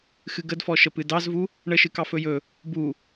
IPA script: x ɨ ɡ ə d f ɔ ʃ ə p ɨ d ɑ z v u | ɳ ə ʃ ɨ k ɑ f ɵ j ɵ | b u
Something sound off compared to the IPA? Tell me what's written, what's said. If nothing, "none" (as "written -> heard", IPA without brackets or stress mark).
none